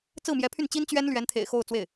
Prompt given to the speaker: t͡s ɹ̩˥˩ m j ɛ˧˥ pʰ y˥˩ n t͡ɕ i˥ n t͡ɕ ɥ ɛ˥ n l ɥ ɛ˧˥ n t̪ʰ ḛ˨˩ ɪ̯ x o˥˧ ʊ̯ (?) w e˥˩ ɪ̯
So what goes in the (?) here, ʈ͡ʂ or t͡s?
t͡s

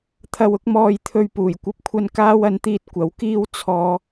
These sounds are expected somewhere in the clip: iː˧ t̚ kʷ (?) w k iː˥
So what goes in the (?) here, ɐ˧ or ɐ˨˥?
ɐ˨˥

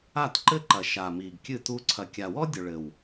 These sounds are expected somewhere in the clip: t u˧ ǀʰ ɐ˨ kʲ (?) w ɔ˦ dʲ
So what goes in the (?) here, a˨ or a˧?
a˨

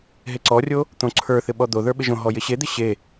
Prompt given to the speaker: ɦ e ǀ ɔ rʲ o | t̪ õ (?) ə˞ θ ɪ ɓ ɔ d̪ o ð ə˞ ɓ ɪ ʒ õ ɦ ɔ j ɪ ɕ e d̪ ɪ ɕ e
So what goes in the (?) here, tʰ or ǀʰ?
ǀʰ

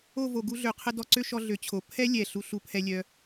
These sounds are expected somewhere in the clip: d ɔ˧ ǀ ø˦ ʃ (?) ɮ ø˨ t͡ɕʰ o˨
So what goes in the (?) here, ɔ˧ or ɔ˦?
ɔ˧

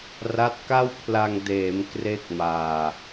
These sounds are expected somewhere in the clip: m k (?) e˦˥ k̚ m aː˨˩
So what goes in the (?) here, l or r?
r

